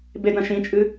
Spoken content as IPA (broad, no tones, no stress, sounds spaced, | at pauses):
b e d ɐ̃ ʃ ĩ t͡ʃʼ ɨ